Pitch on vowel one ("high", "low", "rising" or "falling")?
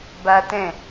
high